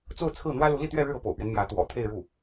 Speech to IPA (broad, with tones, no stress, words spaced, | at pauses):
t͡so˥˧ʊ̯t͡sʰɹ̩˥˩ n̪wä˥lu˧˥ li˥˧t̪ɥɛ˥˧ɻɻ̩˥˧ ɤ˥˩po̰˨˩ʊ̯pɥɛ˦n mjä˧˥t̪wɔ̰˨˩ t̪ʰe˥˧ɪ̯ɻu˥˩